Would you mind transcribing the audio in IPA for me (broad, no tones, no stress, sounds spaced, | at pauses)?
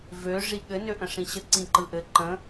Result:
v ø ʐ i ɠ ɘ n ø ʔ ə̃ ʂ ĩ ɕ ə ǀ ĩ ǃ ɯ ʔ ɘ ǃ ə̃